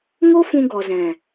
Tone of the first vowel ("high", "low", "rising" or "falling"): high